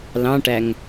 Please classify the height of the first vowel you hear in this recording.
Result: low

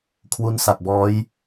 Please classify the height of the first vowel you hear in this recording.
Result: high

